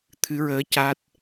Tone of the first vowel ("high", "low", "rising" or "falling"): rising